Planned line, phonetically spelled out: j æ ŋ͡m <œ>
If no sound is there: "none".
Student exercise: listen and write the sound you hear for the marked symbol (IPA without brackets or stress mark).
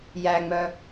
œ